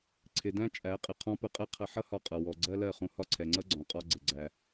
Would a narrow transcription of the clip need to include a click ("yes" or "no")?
yes